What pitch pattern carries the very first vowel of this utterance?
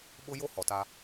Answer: high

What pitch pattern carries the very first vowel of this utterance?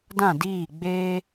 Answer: falling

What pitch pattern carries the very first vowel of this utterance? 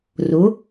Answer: rising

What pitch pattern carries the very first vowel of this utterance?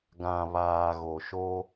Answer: low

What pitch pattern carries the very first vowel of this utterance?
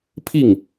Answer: falling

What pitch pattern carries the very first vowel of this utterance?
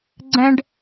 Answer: high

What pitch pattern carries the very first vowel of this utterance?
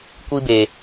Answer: high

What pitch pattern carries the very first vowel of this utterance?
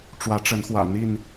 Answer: rising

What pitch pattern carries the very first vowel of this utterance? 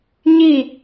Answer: falling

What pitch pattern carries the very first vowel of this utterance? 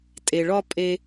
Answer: low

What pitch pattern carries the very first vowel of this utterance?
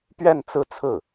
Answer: falling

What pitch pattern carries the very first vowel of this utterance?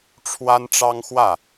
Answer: high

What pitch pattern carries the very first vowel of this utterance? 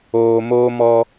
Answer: low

